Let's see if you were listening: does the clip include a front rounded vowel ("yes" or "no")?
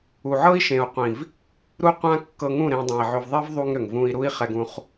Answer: yes